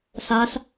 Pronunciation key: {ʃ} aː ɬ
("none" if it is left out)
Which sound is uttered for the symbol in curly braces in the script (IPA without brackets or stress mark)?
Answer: ɬ